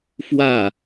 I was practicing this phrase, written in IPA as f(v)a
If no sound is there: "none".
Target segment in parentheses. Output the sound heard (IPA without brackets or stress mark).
w